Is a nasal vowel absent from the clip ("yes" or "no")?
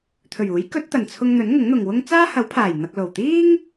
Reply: yes